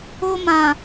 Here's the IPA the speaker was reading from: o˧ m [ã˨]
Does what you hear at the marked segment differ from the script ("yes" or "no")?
no